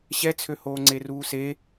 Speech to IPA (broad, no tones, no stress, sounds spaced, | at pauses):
ɕ ɛ t͡sʰ ø h oː ŋ͡ǀ e r uː s e